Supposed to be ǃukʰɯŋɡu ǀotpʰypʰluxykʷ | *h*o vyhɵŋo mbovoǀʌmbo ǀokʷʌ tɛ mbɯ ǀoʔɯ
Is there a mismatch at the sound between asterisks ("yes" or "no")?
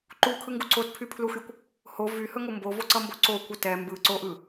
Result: no